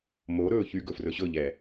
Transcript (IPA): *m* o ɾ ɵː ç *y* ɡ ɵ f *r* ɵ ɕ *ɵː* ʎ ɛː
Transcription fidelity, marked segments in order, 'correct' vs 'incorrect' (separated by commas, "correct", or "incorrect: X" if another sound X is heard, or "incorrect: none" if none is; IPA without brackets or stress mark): correct, correct, correct, incorrect: ɵ